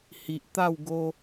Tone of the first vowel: low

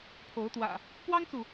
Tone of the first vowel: rising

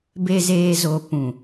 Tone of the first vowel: low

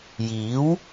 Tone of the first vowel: rising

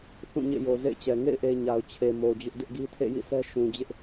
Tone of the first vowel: falling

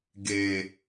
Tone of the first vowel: low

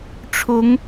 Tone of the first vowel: rising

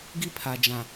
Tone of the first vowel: high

